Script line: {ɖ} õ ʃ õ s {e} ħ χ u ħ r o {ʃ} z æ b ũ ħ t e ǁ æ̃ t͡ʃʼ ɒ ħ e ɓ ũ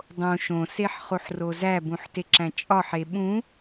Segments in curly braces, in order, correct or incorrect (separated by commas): incorrect, correct, incorrect